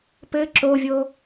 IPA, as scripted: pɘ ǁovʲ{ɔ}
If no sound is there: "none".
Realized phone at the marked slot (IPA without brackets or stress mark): o